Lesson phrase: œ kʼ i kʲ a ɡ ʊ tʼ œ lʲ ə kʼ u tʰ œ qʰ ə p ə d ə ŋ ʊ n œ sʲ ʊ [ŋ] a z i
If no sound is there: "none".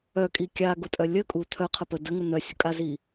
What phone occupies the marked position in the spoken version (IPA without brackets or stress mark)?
kʼ